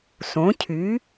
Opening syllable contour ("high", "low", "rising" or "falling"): rising